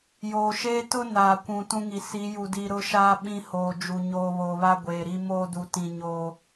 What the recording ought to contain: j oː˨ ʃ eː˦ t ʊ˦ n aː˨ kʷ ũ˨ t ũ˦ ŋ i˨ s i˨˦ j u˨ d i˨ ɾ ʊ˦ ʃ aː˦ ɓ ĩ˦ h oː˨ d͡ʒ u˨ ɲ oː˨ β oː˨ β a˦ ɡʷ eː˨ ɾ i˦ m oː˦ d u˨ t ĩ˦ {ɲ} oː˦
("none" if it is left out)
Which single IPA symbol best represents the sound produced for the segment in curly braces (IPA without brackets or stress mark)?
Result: ɲ